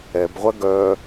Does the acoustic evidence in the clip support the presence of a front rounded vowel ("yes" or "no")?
yes